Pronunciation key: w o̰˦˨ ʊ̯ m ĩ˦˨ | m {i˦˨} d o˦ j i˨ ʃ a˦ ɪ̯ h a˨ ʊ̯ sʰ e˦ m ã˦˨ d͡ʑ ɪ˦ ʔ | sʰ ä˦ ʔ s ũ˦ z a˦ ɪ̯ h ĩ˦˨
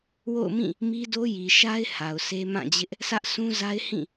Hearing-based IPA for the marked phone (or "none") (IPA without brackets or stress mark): i˦